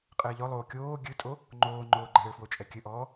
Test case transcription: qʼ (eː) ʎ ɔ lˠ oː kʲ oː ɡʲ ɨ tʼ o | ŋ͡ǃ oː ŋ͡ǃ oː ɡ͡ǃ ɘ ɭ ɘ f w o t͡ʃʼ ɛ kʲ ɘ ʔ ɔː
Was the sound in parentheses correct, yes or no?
no